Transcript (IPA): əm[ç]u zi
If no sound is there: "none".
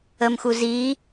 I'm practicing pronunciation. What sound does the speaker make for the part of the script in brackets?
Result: x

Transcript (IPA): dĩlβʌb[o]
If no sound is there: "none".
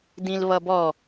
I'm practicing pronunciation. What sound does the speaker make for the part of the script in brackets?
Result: ɔ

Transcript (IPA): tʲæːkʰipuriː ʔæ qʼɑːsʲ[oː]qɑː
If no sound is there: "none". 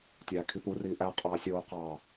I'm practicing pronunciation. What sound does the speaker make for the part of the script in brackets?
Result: oː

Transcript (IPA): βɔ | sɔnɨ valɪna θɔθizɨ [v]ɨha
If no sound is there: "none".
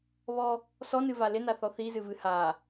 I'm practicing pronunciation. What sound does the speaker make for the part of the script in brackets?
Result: v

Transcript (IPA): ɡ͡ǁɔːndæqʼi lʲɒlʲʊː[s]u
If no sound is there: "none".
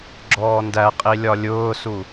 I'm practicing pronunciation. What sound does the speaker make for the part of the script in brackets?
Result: s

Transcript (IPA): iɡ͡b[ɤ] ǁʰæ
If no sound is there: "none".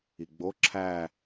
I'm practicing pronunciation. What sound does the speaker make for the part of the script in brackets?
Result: o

